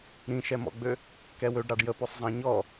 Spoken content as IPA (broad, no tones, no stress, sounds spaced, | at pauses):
ɾ ĩ ʃ ɛ m ɔ̰ ɡ͡b ø | k ɛ w ø ɖ ɾ ɑ ɖ j ə p o sˤ zˤ ɑ̃ ɲ ɔ